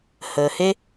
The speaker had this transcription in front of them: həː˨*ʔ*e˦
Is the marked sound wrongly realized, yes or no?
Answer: yes